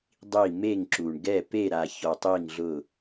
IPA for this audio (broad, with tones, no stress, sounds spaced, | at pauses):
dˤ i˦˨ m e˦˨ ŋ ǁ u˨ ɳ ɡ ɛ˦˨ p e˦˨ ɾ a˨ ç ɔ˨ tˤ i˦˨ ŋ ɮ ʊ˦˨